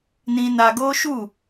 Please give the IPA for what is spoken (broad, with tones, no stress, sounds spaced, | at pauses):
n ĩ˧ n a˧ ɡ o˦ ʃ u˦˨